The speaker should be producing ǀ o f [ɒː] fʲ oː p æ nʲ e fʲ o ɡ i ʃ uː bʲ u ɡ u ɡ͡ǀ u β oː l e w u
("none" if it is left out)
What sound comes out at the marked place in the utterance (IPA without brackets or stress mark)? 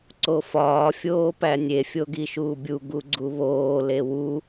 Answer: ɒː